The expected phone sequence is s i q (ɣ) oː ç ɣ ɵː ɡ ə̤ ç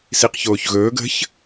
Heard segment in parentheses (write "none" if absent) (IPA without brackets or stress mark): ç